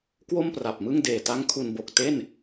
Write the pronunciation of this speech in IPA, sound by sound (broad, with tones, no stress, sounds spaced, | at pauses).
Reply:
k w o˥˩ m p r a˨˩ p̚ m ɯ˥˩ ŋ d eː˨˩ t a˦˥ ŋ kʰ u˧ n b o˨˩ k̚ t e˥˩ n